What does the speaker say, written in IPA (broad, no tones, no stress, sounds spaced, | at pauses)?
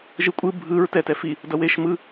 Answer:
ʒ ɯ kʷʼ ɯ bʱ ɯ ɹ t ɛ t ɛ f i | d ʌ w e ʃ m ɯ